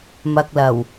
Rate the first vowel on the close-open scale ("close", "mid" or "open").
open